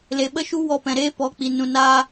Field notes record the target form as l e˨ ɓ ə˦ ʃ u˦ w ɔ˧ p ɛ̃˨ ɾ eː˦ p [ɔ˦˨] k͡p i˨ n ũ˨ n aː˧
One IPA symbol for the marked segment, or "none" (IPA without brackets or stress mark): ɔ˨˦